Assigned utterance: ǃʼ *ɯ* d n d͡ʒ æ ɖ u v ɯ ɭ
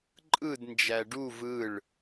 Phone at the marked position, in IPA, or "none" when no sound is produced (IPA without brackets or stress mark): ɯ